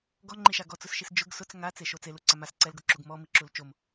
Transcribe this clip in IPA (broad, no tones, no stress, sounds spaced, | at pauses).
ɡ ɔ ŋ͡ǃ i ʃ a ɡ ɔ t͡s ʊ s ʃ i s d͡ʒ ʊ ɡ s ʊ t͡s ŋ a t͡s e ʃ o t͡s e l u ǀ a m a s ǀ ɛ l ɡ o ǁ u ɡ m ɔ m i ǁ u l t͡ʃ o m